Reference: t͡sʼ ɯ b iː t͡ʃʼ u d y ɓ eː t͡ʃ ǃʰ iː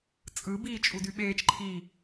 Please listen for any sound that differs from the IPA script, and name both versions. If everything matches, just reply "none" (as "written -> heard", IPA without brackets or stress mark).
none